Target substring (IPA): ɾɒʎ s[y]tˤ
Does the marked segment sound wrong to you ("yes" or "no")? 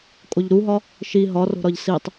yes